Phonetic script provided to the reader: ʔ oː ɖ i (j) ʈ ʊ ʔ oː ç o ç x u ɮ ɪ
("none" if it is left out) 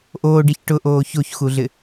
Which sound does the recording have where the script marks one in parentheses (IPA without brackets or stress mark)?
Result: ç